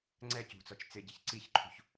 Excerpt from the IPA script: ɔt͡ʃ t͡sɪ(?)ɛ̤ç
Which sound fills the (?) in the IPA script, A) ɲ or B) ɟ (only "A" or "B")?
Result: B